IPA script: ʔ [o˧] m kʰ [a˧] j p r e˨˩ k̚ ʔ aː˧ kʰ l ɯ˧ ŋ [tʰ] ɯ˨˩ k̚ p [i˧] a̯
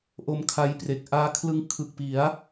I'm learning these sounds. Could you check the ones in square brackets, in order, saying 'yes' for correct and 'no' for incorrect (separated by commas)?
yes, yes, no, no